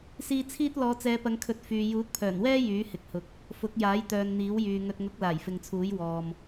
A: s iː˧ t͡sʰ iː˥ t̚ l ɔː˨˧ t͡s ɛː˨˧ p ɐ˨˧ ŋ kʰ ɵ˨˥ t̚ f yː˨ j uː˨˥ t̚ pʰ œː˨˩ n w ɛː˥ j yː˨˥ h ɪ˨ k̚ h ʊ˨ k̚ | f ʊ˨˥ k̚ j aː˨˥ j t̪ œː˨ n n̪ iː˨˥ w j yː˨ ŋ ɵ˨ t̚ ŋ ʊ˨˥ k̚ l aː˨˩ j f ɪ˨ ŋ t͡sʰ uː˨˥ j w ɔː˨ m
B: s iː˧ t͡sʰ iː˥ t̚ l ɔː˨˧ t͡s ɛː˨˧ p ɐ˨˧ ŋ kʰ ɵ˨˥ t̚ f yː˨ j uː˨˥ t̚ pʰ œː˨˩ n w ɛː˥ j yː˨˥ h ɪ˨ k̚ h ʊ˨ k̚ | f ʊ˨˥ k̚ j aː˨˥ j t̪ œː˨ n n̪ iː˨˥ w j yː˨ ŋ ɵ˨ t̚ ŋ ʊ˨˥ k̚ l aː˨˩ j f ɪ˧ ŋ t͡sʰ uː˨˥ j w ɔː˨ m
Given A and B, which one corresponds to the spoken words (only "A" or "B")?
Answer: A